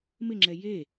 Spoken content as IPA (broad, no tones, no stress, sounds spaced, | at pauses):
m ɪ ŋ͡ǁ ɛ j e